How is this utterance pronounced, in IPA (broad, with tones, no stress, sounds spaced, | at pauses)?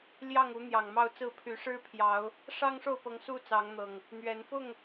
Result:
l j ɑ˥˨ ŋ u˨˦ n̪ j ɑ˨˩ ŋ m ɑ˥˨ ʊ̯ t͡s ɹ̩˥˨ pʰ y˨˦ ʂ ɻ̩˦ pʰ j ɑ˨˦ ʊ̯ | ʂ ɑ˦ ŋ ʂ o˥˨ ʊ̯ p ɤ˨˦ ŋ s u˦ t͡s ɑ˨˦ ŋ n̪ ɤ˨˩ ŋ | n̪ ɥ ɛ˨˦ n f ʊ˥˨ ŋ